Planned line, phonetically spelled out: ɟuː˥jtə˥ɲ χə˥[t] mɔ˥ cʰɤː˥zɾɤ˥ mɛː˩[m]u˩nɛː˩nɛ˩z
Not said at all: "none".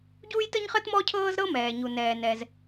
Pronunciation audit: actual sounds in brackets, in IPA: t, ɲ

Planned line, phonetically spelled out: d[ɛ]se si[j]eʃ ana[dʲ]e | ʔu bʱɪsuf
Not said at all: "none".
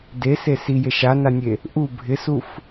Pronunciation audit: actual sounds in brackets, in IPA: e, j, nʲ

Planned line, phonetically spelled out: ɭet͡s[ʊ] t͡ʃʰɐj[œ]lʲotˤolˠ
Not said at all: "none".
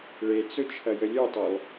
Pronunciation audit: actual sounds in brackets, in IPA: ʊ, ə

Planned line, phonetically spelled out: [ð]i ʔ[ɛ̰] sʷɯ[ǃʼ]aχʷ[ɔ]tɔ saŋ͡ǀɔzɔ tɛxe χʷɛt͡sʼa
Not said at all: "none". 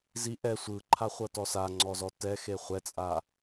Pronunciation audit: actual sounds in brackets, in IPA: z, ɛ, ǃʰ, ɤ

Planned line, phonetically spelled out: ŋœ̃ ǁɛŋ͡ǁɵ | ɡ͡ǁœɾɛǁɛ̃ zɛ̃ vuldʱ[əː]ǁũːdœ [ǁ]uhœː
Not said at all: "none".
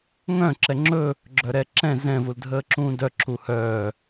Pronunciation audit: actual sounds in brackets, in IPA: əː, ǁ

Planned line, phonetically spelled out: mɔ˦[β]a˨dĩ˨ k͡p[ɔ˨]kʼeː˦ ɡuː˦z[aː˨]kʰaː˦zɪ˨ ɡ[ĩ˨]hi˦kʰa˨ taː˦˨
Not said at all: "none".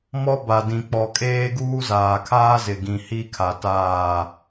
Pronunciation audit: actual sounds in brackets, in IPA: b, ɔ˨, aː˨, ĩ˨

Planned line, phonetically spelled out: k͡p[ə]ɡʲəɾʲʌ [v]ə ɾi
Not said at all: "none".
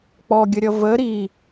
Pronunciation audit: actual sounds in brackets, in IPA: ɔ, v

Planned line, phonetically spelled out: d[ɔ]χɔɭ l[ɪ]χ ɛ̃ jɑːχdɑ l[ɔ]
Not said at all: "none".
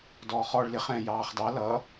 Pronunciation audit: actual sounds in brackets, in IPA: ɔː, ɪ, ʌ

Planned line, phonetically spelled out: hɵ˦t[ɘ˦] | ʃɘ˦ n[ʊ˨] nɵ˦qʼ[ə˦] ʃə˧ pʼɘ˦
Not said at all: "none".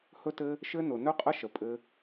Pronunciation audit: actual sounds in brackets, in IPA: ɘ˦, ʊ˨, ə˦

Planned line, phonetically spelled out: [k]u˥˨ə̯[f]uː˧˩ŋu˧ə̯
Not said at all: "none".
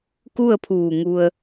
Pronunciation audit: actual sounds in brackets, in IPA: k, pʰ

